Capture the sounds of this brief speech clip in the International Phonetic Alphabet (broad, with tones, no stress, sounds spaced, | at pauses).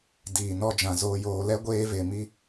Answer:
d iː˨ n ɔ˦ d͡ʒ ã˨ z oː˨ j oː˨ l ɛ˦ ɡʷ eː˦ v e˨ m i˦